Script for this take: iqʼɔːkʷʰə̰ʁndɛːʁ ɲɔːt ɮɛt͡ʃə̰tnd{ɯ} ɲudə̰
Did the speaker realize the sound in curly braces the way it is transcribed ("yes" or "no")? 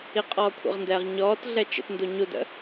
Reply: no